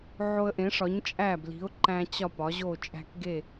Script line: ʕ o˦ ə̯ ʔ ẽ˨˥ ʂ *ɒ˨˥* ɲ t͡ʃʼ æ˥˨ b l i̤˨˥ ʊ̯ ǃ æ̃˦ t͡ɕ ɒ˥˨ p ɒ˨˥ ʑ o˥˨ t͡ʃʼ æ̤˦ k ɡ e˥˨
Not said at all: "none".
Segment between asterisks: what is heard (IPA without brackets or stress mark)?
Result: ɒ˨˥